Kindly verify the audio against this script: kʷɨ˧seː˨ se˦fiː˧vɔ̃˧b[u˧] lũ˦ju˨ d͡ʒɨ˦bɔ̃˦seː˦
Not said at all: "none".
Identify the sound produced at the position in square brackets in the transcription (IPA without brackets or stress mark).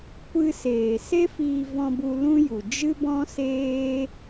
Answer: u˧